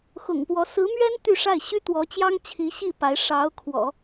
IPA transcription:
x ʊ̰˨˩ ŋ p w ɔ˧˥ s ɹ̩˧˥ m ɥ ɛ˥ n t̪ y˥˧ ʂ a˥˩ ɪ̯ ɕ y˥ t̪ w ɔ˧˥ t͡ɕ j ɑ˥ ŋ t͡ɕʰ i˧˥ ɕ i˥˩ p a˧˥ ɪ̯ ʂ ɑ˧˥ ʊ̯ kʰ w ɔ̰˨˩˦

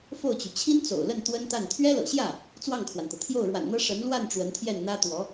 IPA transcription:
f o˥˩ ʊ̯ t͡ɕ y˩ t͡ɕʰ i˥ n t͡s o̰˨˩ ʊ̯ l ə˥˩ n t̪ w ə˥ n t̪ a˥˩ n t̪ʰ ɥ ɛ˥ l ɤ̰˨˩ ɕ j ä˥˩ | t͡s w ɑ˥˩ ŋ kʰ w a˩ n t̪ ɤ˩ t̪ʰ j o˥˩ ʊ̯ ɻ w a̰˨˩ n n̪ ɤ˥ ʂ ə˧˥ n l w a˥˩ n ʈ͡ʂ w ə˧˥ n t̪ʰ j ɛ˥˩ n n̪ ä˥ t̪ w ɔ˧˥

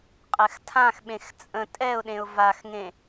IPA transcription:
qʼ ɛ x tʰ ã x ɓ ẽ x t͡sʼ ə̃ tʼ ɛ ʊ̯ ɗ ẽ ʊ̯ v a x ŋ ẽ

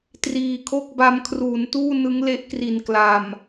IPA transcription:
t r iː˨˩ kʰ o˥˩ k̚ b a˦˥ m kʰ r uː˩˦ n t uː˥˩ n ɯ˦˥ ŋ l e˦˥ ʔ k r i˨˩ n k l a˨˩ m

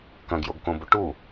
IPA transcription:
k ɐ̃ ɡ j o ɡ k õ b u ʈ u

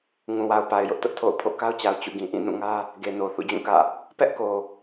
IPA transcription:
ŋ ũ˨ w a˨ ʊ̯ p a˨ ɪ̯ j ʊ˦ ʔ t ʊ˦ ʔ tʰ o̰˦˨ ʊ̯ pʰ o̰˦˨ k a˦ ʊ̯ t͡ɕ a˨ ʊ̯ t͡ɕ ṵ˦˨ ɡ ĩ˨ ʔ ĩ˦˨ n ũ˦˨ ŋ ä˦ | ɡ e˨ n o˨ θ ṵ˦˨ d͡ʑ ũ˦˨ k ä̰˦˨ | p ɛ˦ ʔ k o˨

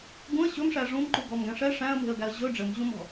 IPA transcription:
ɡ ũ ə̯ ɕ ɵ m ʂ æ ʐ ũ m ǃ u ɡ ɔ m ɡ æ̃ ʂ ɛ ʂ æ̃ ə̯ m e̤ ə̯ ɡ æ ə̯ ʑ ɵ ɖ͡ʐ ɘ m ʑ ũ m ɔ̤

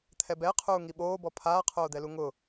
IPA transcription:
t̪ʰ ɛ b ɛ qʰ uː ŋ i ɓ oː b ɔ pʰ aː qʰ oː d̪ ɛ l u ŋ ʊ

